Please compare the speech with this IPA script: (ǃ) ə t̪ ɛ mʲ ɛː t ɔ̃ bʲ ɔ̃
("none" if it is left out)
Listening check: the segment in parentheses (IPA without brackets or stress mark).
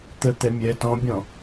t̪